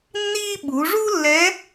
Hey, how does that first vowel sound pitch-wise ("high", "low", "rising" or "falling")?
high